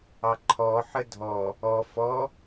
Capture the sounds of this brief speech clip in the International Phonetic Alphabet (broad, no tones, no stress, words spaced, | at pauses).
ɑǃʰɔħə dʱɔ | ɔ fɔ